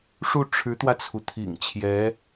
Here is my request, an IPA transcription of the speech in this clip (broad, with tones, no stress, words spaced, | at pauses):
ʂu˥˩ ʈ͡ʂʰɻ̩˧˥t̪wä˧t͡sʰu˩ t̪ʰḭ˨˩ŋt͡ɕʰjɛ˧˥